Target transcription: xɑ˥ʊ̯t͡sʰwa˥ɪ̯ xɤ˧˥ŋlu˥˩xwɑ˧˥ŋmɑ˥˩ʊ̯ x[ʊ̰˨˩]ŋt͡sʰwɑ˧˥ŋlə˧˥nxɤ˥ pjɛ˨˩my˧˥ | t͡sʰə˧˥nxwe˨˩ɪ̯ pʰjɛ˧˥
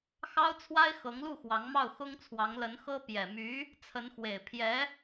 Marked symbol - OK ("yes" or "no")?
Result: no